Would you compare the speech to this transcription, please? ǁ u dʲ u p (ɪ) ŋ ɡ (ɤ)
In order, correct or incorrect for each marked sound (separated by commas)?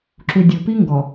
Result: incorrect, incorrect